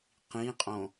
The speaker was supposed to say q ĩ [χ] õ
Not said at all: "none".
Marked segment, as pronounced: qʼ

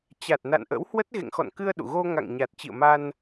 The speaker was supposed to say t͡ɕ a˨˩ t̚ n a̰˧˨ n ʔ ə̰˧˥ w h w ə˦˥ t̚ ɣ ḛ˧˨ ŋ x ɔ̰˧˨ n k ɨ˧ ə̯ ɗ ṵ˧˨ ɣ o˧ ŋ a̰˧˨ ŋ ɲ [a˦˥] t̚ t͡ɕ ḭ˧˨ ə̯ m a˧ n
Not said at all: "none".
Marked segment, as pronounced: a˨˩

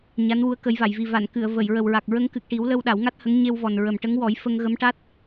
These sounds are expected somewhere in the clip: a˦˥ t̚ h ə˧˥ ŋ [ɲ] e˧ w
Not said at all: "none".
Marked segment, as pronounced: ɲ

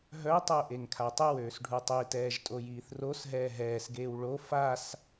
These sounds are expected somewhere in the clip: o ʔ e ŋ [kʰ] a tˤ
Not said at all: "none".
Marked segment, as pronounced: kʰ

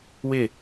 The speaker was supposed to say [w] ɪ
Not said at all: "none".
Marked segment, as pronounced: w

